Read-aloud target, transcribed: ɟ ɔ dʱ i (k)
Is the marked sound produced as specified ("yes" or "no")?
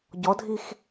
no